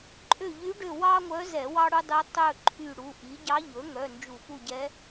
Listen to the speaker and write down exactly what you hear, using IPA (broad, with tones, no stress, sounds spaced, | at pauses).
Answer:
ǃʼ ø˦˨ ʎ y˧˥ ɖ ø˦˨ w ɑ˥ ŋʷ œ˧˥ z ɛ˧˩˧ w ɑ˥ ɽ u˥ dˤ y˧˥ tˤ ɵ˦˨ ǃʰ y˦˨ ɽ u˩˧˩ ʔ i˩˥ ɟ ɑ˧˥ ʎ ɵ˩˥ ŋ œ˩˧˩ n d͡ʒ u˧˩˧ p u˦˨ ɟ ɛ˧˥